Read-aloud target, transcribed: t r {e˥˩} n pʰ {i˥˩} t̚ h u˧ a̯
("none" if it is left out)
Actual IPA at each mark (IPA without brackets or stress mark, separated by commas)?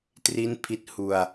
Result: i˥˩, i˥˩